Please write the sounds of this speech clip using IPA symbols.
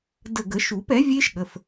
d ə˧˩ ɡ ə˨˩˦ ʃ u˨˩˦ p ɛ˩˥ vʲ e˦˥ ʃ ɠ ə˩˧˩ f

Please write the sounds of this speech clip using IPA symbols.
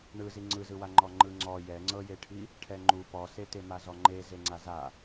ɳ ɯ z i ŋ͡ǀ ɯ z ɯ w a ŋ͡ǃ ɔ ŋ͡ǃ ɯ ŋ͡ǀ ɔ j ɛ ŋ͡ǀ ɤ j e ʈʰ i | ʈʰ ɛ ŋ͡ǃ u p ɔ s e t e m a z ɔ ŋ͡ǃ e z e ŋ͡ǀ a z a

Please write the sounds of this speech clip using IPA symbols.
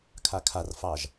kʰ a kʰ a r f ɑ ʒ

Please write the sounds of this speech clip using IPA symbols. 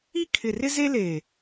i˦ kʰ ɪ˨ r ɪ˦ z e˦ l e˨

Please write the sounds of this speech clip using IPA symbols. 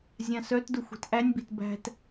zʲ ã s œ t d ʊ xʷ i̤ t ʔ æ nʲ b i̤ t b æ̤ t

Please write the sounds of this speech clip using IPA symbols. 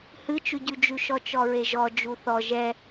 h ɨ t͡ʃ ʉ ɟ ʉ d͡ʒ ʉ ʃ ɔ t͡ʃ ɔ ɹ e ʒ ɔ d͡ʒ u θ ɔ ʒ ɛ

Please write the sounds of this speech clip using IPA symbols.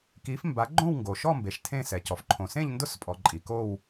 k i˨˥ f m b a˨˥ ɡ͡ǃ õ˥˧ w ŋ ɡ o˨ ʃ ɔ˥˧ m b e˨ ʃ tʰ ẽ˥˧ s ɛ˨ c ɔ˨ f ǃʰ õ˨ s ẽ˥˧ ʎ n d ʊ˥˧ s pʼ ɔ˨ ǃʼ i˨ k o˥˧ w

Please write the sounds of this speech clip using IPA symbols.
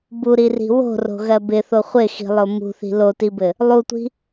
b u ɾ i r i̤ w o̤ r o̤ ɣ ɜ b ɪ θ o χʷ ɪ x i̤ lˠ o m ṳ θ i̤ l o t i b ɘ | lˠ u tʷ i̤

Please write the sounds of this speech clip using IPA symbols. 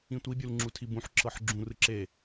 ĩ tʷ i bʲ u l ŋ͡ǁ u tʰ i b ũ ħ ǁ ɤ ħ ɡ͡ǁ ũ r ɯ ǁ e

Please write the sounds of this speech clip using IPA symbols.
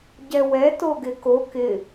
ɟ ɛ w ɛ t o ɡ ɪ k o k ɪ

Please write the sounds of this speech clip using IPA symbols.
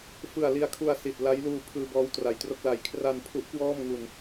f ɯ˨˩ a̯ l i˧ a̯ kʰ u˧ a̯ s i˨˩ t̚ l a˦˥ j l uː˧ pʰ ɯː˧ b ɔː˦˥ w t r a˨˩ j t r o˥˩ k̚ l a˨˩ j kʰ r a˧ n pʰ u˦˥ ʔ k w ɔː˥˩ m ŋ u˧ n

